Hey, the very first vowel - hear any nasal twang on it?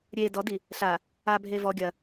no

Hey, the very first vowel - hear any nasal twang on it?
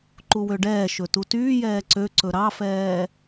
no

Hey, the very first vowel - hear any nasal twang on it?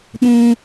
yes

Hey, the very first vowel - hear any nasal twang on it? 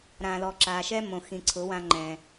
yes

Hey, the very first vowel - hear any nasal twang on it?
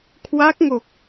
no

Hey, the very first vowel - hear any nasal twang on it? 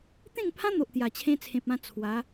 yes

